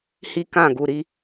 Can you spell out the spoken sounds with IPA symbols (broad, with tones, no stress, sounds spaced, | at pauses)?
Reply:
h i˦ k ã˦˨ ɡ u˨ ɾ i˦